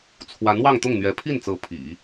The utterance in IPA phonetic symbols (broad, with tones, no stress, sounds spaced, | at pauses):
t͡sʰ w a˧˥ n w ɑ˥˧ ŋ t̪ ʊ˥˩ ŋ n̪ ɥ ɛ˧˥ pʰ i˥˩ n t͡s ɤ˧˥ pʰ ḭ˨˩˦